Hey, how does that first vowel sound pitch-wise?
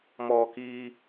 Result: high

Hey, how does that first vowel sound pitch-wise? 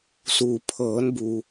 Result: low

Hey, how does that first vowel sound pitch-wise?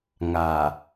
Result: low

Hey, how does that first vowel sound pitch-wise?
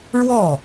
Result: falling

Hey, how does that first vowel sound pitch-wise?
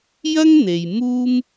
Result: high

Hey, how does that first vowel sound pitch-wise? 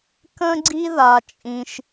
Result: high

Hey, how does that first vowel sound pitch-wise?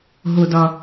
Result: low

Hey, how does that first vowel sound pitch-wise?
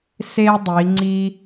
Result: high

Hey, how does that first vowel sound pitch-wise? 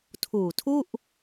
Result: low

